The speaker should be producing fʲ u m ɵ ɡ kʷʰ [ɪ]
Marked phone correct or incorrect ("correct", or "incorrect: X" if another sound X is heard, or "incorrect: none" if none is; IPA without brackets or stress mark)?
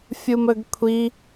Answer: incorrect: i